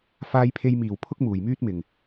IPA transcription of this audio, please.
f aː˧ j pʰ e˧ j m iː˨˩ w pʰ ʊ˥ k̚ m uː˨˩ j m yː˥ t̚ m ɪ˨˩ ŋ

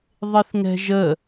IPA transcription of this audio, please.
ðˤ ɪ θ ŋ ɛ̤ ʒ ə

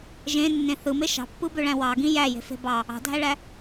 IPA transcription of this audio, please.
ʒ ẽ nː ẽ θ ɯ m e ʃ ɑ̤ pː ɯ b ø ɭ æ̃ w ɑ ɡ ĩ j æ j e̤ f e̤ b ɑ | ɑ̤ dʱ æ ɭ æ

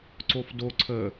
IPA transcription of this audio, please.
ǀ o f d o ǀʰ ə

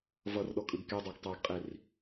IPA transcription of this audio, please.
v ʌ r ɗ ɔ kʼ ɯ ɡ k e dˤ ɜ ɡ tˤ a ɡ qʼ i r

